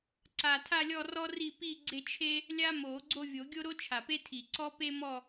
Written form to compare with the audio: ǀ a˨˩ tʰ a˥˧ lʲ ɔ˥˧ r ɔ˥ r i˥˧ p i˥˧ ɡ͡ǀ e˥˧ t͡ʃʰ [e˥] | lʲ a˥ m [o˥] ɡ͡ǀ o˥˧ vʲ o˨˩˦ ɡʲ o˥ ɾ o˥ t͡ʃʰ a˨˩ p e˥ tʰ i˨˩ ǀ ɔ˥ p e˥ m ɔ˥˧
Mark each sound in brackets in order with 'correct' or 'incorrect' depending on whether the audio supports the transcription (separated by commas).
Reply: correct, incorrect